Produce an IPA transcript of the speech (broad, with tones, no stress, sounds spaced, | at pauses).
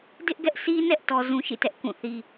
d ɪ˦ ʔ ɡ ɛ˦ ʔ sʰ i˦ n ɛ˦ ʔ t ɔ˦ z ũ˦ ʃ ḭ˦˨ t ɛ˦ ʔ k ũ˦˨ θ i˦